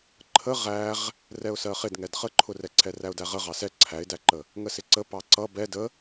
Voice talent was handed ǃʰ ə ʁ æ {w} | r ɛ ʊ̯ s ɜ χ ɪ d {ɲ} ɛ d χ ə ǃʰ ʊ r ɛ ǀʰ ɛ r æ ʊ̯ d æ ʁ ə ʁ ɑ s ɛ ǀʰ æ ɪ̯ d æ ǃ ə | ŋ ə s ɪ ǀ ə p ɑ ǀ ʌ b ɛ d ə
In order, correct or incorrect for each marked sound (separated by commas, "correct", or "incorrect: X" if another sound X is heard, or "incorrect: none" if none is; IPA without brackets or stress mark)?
incorrect: ʁ, incorrect: ŋ